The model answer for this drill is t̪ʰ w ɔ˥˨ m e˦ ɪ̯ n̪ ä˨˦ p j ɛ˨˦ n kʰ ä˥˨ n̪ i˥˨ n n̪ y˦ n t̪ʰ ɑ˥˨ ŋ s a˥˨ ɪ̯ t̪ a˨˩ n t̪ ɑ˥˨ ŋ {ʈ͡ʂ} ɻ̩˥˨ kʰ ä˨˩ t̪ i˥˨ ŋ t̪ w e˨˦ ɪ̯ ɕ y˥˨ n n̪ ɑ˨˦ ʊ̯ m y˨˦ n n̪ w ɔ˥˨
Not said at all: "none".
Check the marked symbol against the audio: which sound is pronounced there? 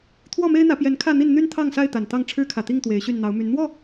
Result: ʈ͡ʂʰ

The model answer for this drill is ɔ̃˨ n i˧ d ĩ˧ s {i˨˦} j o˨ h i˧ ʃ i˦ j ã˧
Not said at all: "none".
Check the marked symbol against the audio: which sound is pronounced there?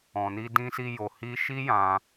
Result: i˧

